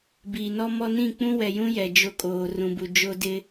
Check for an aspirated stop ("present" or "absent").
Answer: absent